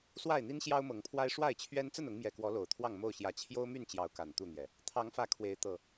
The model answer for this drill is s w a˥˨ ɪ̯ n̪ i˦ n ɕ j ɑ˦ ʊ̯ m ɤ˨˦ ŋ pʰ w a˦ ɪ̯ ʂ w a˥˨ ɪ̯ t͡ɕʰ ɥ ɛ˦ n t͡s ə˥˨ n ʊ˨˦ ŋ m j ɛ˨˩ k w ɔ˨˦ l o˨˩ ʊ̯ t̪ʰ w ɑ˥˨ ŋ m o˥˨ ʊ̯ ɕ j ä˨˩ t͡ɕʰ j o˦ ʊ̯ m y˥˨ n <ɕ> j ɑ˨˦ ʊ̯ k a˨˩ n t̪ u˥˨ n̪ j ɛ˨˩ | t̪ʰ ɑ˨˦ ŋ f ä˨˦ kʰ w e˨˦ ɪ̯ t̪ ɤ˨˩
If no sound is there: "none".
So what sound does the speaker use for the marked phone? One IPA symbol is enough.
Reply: t͡ɕ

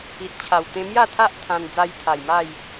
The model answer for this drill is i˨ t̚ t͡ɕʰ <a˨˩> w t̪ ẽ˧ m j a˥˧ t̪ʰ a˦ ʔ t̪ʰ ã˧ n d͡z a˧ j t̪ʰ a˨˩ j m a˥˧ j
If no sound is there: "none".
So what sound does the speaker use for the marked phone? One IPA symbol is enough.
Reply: a˨˩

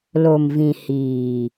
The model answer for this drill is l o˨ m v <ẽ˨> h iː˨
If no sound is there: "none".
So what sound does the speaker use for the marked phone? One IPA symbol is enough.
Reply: ĩ˨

